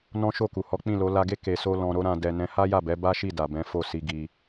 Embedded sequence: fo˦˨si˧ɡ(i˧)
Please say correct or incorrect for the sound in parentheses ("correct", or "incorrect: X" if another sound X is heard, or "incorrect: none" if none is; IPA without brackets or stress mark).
correct